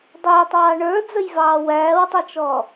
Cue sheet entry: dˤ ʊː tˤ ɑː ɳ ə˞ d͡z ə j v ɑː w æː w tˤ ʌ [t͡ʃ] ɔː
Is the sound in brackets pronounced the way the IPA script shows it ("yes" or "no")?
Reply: yes